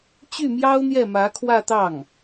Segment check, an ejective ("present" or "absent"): absent